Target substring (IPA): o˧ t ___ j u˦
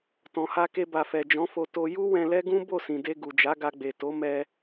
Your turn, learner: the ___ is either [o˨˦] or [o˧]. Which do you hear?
o˧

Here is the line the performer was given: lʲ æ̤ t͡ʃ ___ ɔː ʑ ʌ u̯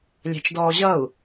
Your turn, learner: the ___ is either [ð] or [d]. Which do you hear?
d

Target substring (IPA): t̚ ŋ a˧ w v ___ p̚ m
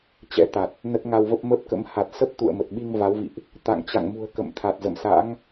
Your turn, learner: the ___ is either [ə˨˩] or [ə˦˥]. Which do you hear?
ə˦˥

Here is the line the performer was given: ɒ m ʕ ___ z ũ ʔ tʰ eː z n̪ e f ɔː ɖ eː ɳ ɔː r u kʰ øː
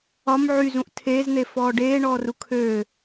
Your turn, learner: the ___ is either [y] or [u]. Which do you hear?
y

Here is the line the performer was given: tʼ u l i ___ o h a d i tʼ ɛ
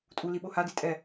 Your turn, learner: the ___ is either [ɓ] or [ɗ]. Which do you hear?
ɓ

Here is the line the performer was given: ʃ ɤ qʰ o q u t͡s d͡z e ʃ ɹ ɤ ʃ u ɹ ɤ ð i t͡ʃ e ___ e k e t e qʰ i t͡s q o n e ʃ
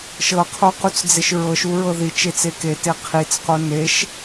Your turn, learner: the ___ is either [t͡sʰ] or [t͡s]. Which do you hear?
t͡s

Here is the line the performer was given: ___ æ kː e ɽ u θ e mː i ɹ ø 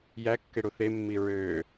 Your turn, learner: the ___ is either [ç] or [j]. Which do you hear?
j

